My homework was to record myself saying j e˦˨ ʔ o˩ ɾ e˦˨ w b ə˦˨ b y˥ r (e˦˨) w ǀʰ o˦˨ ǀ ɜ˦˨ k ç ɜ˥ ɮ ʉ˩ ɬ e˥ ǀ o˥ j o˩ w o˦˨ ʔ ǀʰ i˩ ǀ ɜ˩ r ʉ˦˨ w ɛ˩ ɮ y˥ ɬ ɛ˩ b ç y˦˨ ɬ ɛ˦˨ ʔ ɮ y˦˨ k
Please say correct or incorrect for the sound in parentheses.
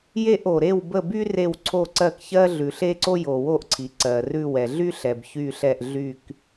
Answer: correct